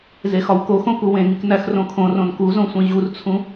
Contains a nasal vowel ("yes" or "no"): yes